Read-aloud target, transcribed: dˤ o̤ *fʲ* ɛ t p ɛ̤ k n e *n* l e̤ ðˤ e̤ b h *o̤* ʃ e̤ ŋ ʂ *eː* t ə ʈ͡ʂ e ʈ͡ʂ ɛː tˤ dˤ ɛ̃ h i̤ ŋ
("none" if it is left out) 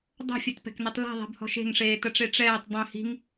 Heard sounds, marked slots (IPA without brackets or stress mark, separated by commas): fʲ, tˤ, ɔ̤, eː